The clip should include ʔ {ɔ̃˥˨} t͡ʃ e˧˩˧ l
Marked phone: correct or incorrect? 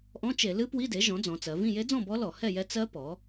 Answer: incorrect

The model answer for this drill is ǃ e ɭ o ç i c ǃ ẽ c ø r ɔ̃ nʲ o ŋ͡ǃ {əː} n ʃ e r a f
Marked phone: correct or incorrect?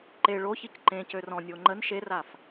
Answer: incorrect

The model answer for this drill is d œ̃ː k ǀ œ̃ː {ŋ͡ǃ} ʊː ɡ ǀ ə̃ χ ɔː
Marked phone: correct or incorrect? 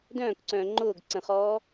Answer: correct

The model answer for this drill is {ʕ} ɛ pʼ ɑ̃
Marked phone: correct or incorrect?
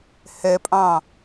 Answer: incorrect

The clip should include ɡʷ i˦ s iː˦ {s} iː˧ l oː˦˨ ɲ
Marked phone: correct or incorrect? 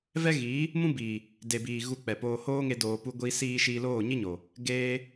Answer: incorrect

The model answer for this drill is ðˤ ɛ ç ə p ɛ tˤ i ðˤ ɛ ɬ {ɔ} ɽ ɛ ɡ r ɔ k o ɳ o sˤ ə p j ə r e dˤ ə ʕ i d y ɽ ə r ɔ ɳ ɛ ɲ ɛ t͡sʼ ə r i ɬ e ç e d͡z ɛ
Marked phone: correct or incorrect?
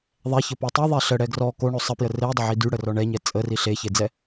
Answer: incorrect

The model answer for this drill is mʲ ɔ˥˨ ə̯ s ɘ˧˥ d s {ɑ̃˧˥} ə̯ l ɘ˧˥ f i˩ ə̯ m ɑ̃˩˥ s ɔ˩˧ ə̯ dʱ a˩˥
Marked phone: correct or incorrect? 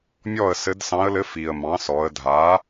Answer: correct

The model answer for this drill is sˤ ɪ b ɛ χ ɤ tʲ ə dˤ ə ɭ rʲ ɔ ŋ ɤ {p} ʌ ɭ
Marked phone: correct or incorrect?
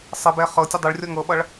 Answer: incorrect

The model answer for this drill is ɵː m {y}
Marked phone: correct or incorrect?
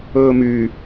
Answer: correct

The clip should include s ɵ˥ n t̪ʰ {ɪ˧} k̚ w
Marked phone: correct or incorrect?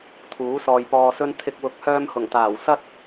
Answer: incorrect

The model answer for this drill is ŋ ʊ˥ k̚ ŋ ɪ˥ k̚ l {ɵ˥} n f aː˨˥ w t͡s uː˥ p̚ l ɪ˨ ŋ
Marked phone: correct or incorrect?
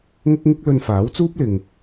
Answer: incorrect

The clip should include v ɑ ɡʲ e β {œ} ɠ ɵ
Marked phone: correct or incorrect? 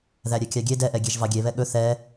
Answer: incorrect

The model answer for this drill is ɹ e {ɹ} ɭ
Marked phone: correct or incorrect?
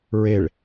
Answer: incorrect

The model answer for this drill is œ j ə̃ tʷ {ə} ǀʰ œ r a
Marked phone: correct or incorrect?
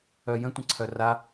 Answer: incorrect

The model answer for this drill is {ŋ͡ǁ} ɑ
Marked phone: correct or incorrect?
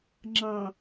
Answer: correct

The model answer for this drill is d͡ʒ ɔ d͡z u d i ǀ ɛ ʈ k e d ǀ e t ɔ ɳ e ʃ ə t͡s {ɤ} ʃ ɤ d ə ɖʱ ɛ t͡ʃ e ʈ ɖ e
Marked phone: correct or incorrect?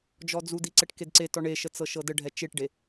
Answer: correct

